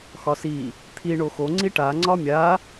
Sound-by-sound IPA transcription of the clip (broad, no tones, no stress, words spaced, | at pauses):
xɒsi | t̪ʰi ɳoxo ŋ͡ǀiʈa ŋ͡ǀɒmʲa